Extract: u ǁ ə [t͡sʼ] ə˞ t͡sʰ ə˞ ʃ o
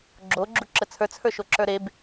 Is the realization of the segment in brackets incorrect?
yes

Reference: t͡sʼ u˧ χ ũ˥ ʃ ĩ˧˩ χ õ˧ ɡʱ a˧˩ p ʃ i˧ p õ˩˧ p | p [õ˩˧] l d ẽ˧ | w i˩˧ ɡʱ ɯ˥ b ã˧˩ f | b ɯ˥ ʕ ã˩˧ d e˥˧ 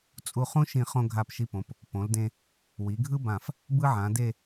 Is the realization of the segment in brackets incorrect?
no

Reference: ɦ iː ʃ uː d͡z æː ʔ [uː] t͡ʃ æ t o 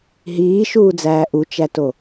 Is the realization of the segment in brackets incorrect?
yes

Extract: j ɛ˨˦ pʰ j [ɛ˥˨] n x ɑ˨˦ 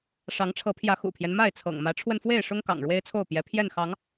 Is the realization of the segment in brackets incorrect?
no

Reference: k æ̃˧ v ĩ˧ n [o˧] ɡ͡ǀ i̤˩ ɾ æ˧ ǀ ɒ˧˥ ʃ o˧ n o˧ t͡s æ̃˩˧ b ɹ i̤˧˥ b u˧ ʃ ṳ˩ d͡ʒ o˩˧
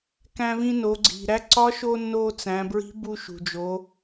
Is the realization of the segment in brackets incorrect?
yes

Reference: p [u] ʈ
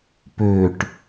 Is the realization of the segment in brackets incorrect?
yes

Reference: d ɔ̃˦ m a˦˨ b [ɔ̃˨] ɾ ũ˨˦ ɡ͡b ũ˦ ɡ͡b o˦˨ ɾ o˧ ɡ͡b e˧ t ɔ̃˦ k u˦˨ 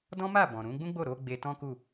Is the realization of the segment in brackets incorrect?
no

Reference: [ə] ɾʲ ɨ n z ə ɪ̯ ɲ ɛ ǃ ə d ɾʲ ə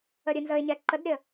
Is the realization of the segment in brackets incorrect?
no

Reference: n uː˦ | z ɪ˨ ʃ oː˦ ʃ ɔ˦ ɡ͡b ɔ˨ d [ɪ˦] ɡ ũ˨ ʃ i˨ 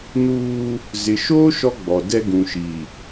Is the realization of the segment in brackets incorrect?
yes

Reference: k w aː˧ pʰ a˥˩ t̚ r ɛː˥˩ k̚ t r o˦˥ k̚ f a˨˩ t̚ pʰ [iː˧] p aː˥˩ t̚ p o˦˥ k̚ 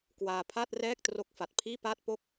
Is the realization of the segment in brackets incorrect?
yes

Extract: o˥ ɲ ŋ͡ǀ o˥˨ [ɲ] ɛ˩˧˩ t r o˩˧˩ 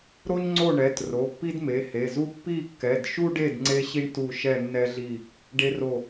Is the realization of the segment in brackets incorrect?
yes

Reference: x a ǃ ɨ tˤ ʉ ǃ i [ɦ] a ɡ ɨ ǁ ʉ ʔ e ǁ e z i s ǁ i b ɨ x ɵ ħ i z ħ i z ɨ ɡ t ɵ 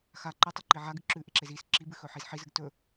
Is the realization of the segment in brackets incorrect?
yes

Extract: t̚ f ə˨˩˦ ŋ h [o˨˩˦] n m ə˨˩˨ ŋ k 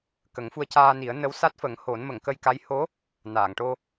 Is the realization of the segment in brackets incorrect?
no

